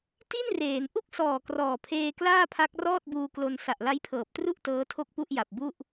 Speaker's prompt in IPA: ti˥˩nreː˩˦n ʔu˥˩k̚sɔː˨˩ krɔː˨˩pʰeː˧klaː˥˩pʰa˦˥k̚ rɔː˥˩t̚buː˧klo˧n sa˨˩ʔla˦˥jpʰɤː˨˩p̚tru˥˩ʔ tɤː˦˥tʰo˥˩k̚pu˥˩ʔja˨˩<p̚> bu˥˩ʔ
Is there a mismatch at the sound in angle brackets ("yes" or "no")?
no